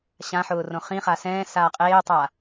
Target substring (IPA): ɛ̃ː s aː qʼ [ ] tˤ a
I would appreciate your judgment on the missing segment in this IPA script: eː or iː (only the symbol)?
eː